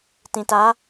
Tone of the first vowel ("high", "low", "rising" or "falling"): low